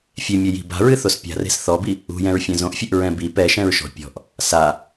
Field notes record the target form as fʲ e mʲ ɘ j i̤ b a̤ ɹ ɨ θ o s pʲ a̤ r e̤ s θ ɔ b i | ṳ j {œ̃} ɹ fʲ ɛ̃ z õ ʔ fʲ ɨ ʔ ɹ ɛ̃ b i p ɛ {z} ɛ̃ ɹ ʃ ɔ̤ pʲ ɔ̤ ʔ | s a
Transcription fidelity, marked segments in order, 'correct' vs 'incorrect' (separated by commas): incorrect, incorrect